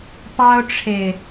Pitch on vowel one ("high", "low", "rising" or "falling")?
high